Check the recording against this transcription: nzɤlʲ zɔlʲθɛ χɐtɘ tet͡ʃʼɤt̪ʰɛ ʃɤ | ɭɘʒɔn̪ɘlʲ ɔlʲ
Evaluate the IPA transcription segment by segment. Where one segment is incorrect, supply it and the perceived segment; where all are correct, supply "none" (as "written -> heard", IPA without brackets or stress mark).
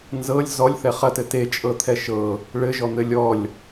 none